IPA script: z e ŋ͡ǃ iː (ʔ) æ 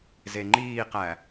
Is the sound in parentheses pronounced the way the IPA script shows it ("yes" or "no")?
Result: no